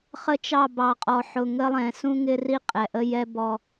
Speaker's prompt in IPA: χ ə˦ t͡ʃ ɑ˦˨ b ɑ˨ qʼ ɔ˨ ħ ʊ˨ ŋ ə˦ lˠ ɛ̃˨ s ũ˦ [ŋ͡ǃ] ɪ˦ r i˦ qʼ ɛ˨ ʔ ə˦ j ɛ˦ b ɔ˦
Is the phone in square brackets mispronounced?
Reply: yes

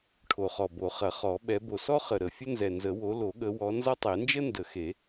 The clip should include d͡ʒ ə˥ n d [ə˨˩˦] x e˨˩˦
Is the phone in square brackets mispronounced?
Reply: no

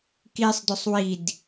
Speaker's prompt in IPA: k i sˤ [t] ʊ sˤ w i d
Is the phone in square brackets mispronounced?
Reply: yes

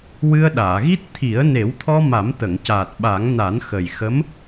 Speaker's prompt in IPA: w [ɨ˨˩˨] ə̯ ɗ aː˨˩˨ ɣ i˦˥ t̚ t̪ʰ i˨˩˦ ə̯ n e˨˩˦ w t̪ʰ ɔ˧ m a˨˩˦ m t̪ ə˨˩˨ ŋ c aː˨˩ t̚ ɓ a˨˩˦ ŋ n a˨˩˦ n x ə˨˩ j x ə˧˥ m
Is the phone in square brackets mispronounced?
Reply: yes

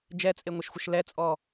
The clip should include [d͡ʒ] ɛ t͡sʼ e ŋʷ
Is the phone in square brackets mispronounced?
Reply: no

